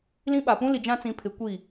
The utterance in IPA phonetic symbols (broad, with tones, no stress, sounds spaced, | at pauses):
l ĩ˦ ɓ a˨ p ũ˦ l i˨ d͡ʒ ã˦ t͡s ĩ˨˦ pʰ ɪ˨˦ kʷ i˦˨